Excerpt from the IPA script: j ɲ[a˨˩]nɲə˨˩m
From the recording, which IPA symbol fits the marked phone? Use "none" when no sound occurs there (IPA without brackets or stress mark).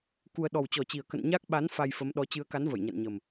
a̰˧˨